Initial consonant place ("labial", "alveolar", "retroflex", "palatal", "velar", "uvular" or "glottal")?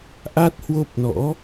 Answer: glottal